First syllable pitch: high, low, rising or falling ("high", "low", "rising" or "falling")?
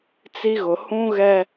high